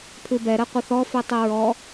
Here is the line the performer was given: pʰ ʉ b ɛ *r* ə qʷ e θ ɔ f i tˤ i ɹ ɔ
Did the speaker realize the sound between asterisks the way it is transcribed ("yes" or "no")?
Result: no